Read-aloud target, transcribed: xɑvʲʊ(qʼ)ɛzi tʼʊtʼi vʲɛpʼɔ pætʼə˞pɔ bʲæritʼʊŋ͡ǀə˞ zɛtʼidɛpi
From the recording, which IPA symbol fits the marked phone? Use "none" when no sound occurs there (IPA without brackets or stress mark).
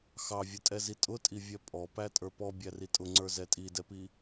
tʼ